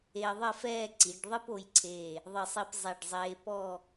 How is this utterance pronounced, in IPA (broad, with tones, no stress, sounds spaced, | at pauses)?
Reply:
e˧ ə̯ ðˤ ɘ˥˧ f ɛː˥˧ ǀ i˩˧ ɖ ðˤ ɨ˥ p o˧ j ǀʰ eː˧˩ | ðˤ ɨ˧˩ sˤ i˧ p zˤ ɛ˧˩ ɖ zˤ eː˧ p ɔ˥˧